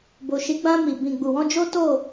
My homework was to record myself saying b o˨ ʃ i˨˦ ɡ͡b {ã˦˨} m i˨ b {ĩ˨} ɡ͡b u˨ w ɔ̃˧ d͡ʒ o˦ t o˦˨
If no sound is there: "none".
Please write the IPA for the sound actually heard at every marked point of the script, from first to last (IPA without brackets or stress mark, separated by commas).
ã˧, ĩ˨